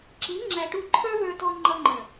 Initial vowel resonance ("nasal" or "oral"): oral